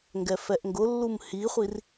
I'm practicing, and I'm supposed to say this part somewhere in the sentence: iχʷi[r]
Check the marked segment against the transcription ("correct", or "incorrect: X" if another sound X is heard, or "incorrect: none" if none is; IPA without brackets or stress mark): correct